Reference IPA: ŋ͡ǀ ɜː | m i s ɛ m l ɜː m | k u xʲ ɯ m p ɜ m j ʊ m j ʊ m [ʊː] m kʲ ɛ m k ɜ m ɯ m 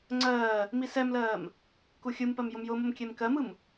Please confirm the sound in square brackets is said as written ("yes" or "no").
no